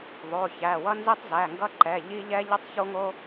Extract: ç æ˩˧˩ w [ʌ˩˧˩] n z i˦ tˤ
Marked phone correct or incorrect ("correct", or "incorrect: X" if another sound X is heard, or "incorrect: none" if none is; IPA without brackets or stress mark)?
incorrect: ʌ˦